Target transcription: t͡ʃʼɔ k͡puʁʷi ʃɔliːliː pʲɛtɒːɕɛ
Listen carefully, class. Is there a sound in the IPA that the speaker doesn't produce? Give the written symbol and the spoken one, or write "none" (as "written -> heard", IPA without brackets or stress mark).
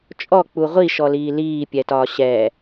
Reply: none